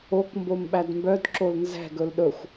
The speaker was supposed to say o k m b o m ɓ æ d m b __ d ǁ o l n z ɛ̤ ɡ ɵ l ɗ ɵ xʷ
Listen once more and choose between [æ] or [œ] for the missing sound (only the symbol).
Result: œ